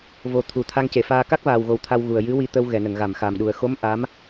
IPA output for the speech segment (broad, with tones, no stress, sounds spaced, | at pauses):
v o˨˩ t̪ʰ u˨˩˨ t̪ʰ a˧ ŋ c e˨˩˨ f aː˧ k a˦˥ k̚ v aː˨˩ w ɣ o˨˩ w t̪ʰ a˧ w ɣ u˨˩ ə̯ j ɨ˧˥ w i˧ t̪ ə˧ w ɣ ɛ˨˩˨ n ə˨˩˨ ŋ ɣ a˨˩˨ m x a˨˩ m ɗ u˨˩ ə̯ x o˧˥ m ʔ a˧˥ m